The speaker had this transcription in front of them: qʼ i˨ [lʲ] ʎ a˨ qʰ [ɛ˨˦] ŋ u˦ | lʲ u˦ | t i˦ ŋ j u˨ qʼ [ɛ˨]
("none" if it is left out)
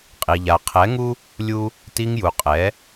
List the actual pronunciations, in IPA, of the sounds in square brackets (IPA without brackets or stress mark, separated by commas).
none, ɛ˨˦, ɛ˨˦